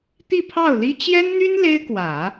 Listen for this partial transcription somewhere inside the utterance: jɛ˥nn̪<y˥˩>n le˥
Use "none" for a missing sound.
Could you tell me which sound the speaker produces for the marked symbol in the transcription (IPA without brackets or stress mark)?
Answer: y˥